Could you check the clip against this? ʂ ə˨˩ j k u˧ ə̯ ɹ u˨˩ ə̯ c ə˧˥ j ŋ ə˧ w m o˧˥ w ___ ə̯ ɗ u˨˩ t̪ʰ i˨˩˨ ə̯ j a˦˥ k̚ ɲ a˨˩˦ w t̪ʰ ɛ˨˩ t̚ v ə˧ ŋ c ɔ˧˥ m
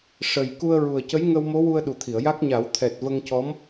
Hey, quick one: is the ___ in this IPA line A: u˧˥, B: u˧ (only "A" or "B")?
B